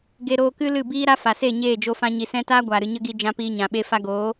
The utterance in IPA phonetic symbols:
ɡe˧ ɾoː˧kɨ˦lɨ˦˨biː˦ ɾa˦fa˨se˦˨ ɲeː˦˨d͡ʒo˧fã˧ ɲi˨sɛ̃˧taː˦ ɡʷaː˨ɾɨ˨ ɲə˦ɡi˧ d͡ʒã˧piː˧ɲã˨ɓe˧ fa˧ɡoː˨˦

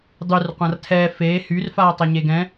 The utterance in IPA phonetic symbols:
dˤyr qʷãrtʰɛ feː hyrfaːtˤɛ ɲeɡɛ̃

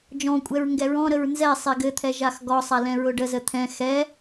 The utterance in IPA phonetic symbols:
d͡ʒɔ̃kʷʼɛɹ ŋɡɛɹɔ̃ɾəɹ nzɛsˤe ɡɘt̪ʰɛ ʒaxɡɔsˤa lɛ̃ɹʊɖəzə t̪ʰɛ̃ xɛ

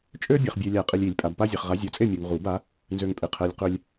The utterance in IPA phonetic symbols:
t͡ʃʼø˦ bʲa˨χbʲø˨ lʲa˨˩˦qʼi˨lʲi˨˩˦lʲ pʼa˨bpa˦zʲɛ˨χ ʁa˨˥zʲɤ˨˥t͡sʼe˥˨ mʲu˨ŋ ʁu˨˩˦ba˨˥ | nzø˨ŋpʼe˨qʰɛ˨lʲ qø˦lʲ

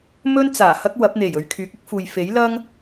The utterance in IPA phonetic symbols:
mɵ˥nt͡saː˨˩ hɐ˥k̚wɐ˨˥p̚n̪e˨˩j ɵ˨˧ɥkʰyː˨˥k̚ɪ˥k̚fuː˨j fe˨˥jlɐ˥ŋ

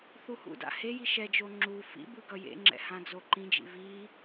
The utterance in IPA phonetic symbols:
θuhṵda̰ heji ʃɛd͡ʒo ŋ͡ǁu fḭbɯ ɡʌjḛŋ͡ǁɛ̰ hãd͡zoǃĩd͡ʒḭ vi

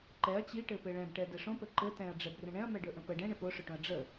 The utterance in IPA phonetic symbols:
ǃɛɐ̯ t͡ɕiʈɘpɘ ɭɛ̃bʈɛ dɛʂõpə ǃɘ tɛ̃ɐ̯ɖ͡ʐɛbrə̃ ɳɛ̃ɐ̯mɛɖɵ ʔə̃pə ɖɛ̃ɳɘ poʂɵʈõɐ̯ ɖ͡ʐə

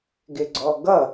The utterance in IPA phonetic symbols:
ɡɪɡ͡ǀɔɡʌ

